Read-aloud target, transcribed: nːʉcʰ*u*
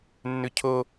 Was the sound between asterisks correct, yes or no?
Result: no